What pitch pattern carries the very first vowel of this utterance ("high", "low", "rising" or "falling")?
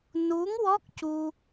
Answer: rising